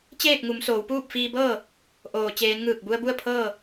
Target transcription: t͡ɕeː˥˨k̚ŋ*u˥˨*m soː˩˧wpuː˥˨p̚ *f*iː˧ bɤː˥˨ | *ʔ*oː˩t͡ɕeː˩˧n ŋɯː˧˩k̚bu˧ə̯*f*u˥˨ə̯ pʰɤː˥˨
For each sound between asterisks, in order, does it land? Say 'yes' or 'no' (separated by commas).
no, yes, yes, no